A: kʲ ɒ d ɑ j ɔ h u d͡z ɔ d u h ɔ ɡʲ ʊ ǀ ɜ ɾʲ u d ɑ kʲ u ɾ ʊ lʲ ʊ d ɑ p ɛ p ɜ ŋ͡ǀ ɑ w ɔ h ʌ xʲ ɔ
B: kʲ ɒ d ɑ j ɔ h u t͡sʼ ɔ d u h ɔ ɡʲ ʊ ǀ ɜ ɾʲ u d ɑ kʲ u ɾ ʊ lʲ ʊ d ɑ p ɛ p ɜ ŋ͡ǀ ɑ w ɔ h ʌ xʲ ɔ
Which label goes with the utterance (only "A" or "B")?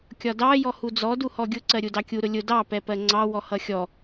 A